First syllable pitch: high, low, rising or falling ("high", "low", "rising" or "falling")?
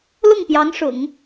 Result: falling